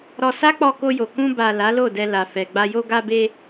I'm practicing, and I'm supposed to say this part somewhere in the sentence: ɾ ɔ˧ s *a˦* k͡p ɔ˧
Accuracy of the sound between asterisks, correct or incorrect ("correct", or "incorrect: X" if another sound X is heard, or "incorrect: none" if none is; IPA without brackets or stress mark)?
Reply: correct